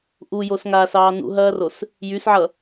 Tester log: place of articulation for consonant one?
glottal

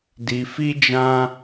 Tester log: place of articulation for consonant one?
alveolar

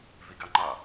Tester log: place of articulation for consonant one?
labial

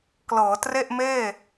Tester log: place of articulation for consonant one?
velar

